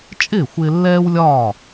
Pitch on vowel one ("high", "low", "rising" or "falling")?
falling